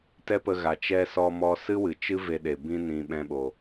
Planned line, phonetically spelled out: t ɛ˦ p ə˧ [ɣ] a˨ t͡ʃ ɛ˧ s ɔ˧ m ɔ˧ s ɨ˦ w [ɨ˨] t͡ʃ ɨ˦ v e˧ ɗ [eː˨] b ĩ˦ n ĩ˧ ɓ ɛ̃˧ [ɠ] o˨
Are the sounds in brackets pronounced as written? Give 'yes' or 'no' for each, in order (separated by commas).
yes, yes, no, no